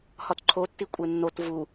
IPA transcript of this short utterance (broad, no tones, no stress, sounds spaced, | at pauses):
h ɒ t ǃʰ o tː i kʷʼ e nː o t v u